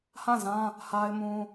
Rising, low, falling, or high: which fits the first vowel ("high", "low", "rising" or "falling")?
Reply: falling